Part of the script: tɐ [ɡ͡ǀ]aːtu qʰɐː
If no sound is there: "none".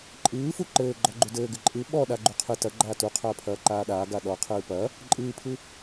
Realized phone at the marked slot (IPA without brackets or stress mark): ɡ͡ǃ